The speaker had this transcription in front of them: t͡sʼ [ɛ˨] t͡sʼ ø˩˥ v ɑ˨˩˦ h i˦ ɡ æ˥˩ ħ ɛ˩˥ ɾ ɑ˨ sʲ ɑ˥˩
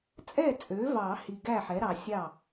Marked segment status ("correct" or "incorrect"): incorrect